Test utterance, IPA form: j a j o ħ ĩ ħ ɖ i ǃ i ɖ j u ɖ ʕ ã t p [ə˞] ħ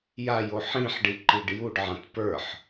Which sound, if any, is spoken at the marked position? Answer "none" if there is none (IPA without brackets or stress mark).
ə˞